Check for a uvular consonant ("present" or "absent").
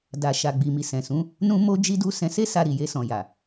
absent